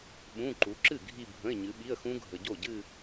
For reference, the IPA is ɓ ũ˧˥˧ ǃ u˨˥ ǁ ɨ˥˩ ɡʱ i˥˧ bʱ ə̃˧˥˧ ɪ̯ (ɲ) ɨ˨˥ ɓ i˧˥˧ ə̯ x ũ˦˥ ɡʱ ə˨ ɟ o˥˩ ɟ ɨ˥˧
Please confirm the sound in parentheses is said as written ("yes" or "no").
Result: yes